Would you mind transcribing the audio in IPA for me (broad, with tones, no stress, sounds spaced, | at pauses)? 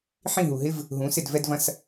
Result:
ħ ĩ˥˧ ɦ u˧ ɦ ɪ˥ v | ɦ ũ˧˥ s ɪ˥˧ d v ɛ˥ d v ɐ̃˥ s